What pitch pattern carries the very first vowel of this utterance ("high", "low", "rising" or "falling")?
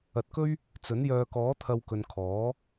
rising